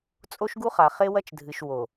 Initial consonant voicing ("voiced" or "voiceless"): voiceless